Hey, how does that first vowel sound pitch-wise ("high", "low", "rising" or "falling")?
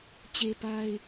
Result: high